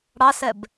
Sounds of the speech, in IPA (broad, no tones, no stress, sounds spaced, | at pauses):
ɽ ɑ s ɛ b